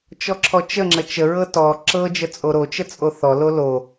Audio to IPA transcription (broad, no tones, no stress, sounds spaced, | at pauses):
t͡ʃ ɔ ǁʰ ɔ t͡ʃ ə ŋ͡ǁ ə t͡ʃ ə ɹ ɤ t ɔ ǁ ɤ d͡ʒ ə t͡sʼ o ɾ o t͡ʃ ə t͡sʼ o θ ɔ l o l o